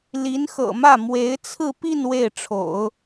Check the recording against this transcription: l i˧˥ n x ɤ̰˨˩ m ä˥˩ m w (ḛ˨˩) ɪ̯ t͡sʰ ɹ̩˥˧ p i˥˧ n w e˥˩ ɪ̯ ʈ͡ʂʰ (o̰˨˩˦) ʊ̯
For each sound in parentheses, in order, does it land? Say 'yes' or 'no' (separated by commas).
no, yes